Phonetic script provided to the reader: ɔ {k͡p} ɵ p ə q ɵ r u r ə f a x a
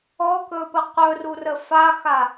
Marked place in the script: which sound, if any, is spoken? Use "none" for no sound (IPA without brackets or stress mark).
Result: k